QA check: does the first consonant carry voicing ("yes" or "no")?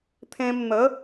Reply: no